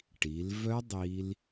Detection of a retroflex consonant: present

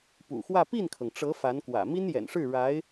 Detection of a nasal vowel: absent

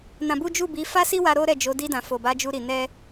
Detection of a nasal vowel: present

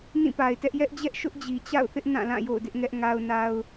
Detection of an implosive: absent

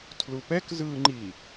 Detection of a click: present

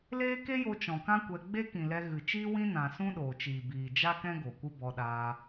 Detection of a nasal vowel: present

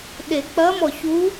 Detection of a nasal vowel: absent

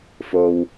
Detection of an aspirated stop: absent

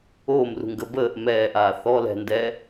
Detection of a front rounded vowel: absent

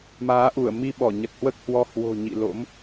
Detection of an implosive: present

